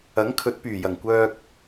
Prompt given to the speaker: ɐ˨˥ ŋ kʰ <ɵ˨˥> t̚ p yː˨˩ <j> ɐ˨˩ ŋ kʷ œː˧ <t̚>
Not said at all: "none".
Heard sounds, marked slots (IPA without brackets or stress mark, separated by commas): ɵ˨˥, j, k̚